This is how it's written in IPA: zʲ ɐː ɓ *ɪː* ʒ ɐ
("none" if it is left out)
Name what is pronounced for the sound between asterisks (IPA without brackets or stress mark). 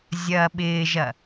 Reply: ɪː